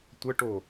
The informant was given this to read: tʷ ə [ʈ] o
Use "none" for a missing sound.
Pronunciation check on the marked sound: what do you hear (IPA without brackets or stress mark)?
ʈ